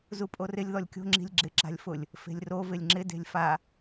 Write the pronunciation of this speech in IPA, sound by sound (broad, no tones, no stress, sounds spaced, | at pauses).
z u pʼ o r ɪ lʲ ð ɔ lʲ kʲ o̤ ŋ͡ǁ i̤ lʲ ɡ͡ǁ ɪ ǁ a̤ lʲ f ʊ lʲ | f e̤ lʲ r o v ɪ lʲ ŋ͡ǁ ɪ d e̤ lʲ f a